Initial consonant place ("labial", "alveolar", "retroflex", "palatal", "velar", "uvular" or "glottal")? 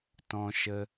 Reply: alveolar